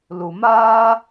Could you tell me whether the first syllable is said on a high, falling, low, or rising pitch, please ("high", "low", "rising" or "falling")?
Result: low